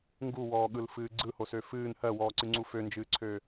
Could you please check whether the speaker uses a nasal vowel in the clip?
no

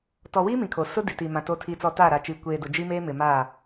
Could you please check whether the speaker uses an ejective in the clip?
no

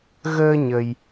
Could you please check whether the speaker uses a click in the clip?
no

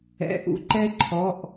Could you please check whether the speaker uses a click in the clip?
yes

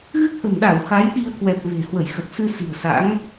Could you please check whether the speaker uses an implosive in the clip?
yes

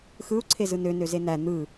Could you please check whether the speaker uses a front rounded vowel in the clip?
yes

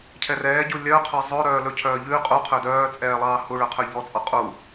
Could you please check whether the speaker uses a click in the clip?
no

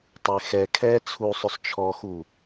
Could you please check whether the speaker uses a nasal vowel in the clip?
no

